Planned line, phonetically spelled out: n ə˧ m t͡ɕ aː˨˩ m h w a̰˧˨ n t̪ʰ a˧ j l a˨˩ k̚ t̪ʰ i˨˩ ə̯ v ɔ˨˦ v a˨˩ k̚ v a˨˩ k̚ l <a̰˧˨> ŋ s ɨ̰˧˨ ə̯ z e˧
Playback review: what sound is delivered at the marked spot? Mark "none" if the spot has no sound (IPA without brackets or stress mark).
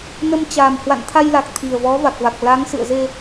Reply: a˨˦